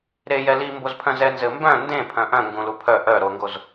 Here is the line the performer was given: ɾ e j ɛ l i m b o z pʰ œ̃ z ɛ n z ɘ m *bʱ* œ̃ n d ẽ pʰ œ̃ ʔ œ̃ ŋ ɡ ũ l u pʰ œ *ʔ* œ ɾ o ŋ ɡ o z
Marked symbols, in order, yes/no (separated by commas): no, yes